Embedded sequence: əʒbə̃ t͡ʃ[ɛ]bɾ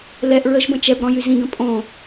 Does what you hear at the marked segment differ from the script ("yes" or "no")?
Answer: no